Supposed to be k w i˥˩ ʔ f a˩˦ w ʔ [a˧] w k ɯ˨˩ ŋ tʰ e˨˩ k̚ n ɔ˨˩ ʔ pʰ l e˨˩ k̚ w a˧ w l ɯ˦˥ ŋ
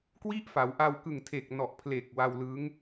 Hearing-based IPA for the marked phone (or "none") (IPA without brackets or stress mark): a˧